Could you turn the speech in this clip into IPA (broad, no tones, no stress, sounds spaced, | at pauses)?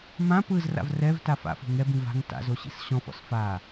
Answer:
m ã p ɯ z r a̰ v r ɛ v t a f a̰ f o̤ ŋ ɛ b ĩ v a̤ ŋ t a̰ z o ɕ ḭ s ɕ ɔ̃ f ɔ̰ s f a